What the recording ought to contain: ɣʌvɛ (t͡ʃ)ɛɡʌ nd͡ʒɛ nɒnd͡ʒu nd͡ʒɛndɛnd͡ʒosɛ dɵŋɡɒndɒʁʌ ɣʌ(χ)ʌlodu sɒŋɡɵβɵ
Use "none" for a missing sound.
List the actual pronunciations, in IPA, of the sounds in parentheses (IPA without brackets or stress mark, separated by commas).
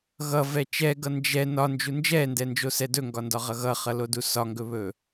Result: t͡ʃ, χ